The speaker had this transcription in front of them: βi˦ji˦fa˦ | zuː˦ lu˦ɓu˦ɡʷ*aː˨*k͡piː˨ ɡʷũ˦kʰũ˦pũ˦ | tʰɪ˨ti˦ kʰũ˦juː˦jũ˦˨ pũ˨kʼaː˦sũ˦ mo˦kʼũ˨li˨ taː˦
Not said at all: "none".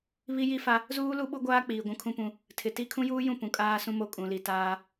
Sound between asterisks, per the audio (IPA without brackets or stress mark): aː˦